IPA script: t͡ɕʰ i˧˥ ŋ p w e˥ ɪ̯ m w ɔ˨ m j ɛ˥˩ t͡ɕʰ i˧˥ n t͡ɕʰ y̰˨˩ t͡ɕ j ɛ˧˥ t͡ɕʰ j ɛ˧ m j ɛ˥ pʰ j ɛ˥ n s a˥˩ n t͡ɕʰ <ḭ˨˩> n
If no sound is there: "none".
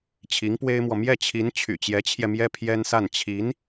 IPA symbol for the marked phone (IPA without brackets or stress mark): i˧˥